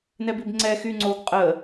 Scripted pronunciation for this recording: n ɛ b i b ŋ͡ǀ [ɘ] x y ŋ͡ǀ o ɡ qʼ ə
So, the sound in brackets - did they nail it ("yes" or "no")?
no